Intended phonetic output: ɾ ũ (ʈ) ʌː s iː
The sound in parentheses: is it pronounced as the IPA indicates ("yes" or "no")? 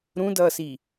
no